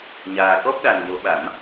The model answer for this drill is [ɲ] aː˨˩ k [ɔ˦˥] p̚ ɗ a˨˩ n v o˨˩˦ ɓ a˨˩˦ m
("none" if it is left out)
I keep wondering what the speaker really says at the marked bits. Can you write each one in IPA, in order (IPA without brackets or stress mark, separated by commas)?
ɲ, ɔ˦˥